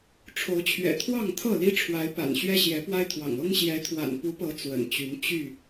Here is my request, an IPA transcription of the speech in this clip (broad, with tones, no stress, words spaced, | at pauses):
ʈ͡ʂʰo˨˦ʊ̯t͡ɕʰɥɛ̰˨˩t̪ʰwɑ˥˨ŋ t̪ʰɤ˥˨li˦ ʈ͡ʂʰwa˨˦ɪ̯pa̰˨˩n ɕɥɛ˦ɕjɛ˨˦pwa˦ɪ̯t̪ʰwɑ̰˨˩ŋ ɤ˦ŋ ɕjɛ˨˦t̪ʰwa̰˨˩n pu˨˦pɤ˨˦ t͡swə̰˨˩nt͡ɕy˨˦n t͡ɕy˥˨